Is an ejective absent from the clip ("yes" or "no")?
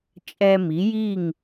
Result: no